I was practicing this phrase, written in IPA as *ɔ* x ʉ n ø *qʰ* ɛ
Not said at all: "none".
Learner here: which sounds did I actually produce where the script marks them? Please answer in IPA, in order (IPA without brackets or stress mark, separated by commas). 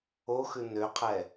o, qʰ